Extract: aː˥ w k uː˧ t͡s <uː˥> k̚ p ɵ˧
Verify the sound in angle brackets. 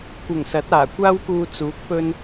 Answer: incorrect: uː˨˥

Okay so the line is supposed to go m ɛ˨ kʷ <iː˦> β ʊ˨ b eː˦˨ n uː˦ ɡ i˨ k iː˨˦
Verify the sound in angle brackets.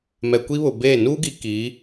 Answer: incorrect: i˦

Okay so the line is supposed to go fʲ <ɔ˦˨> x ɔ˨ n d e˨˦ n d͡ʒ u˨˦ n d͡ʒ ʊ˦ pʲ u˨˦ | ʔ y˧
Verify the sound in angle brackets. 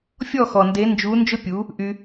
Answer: correct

